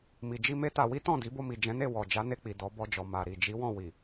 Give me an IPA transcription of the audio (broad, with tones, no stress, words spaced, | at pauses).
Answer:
mi˨d͡ʒi˧ me˦ta˧ wi˦tɔ̃˦˨di˨˦ bo˧mi˨ d͡ʒɛ̃˨˦ne˦˨ wɔ˨ d͡ʒa˨˦ne˧k͡pi˨ dɔ˨˦bɔ˧d͡ʒɔ˨ ma˨ɾi˨ d͡ʒi˨˦ wɔ̃˦˨ wi˨